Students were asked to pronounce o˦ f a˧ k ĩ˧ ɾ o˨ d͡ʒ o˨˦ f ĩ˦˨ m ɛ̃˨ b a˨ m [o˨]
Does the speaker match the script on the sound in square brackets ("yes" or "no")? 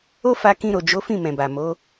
no